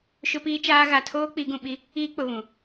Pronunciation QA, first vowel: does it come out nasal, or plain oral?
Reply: oral